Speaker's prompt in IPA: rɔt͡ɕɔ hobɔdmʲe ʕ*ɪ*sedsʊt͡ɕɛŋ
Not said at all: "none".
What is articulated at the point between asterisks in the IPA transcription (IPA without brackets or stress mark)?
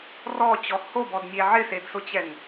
ɪ